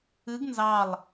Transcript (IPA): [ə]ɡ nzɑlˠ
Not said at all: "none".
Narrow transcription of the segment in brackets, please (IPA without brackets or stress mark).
ɨ